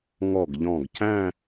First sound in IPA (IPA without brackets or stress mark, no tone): ŋ